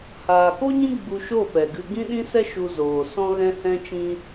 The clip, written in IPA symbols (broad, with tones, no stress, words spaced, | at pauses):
haː˨ko˦ɲĩ˦ ɡ͡bu˧ʃo˦˨pɛ˨ɡɨ˧ ɡĩ˦ɗĩ˦sɛ˦ ʃu˧zoː˨sɔ̃˦ ɣɛ̃˦hɛ̃˦t͡ʃĩ˦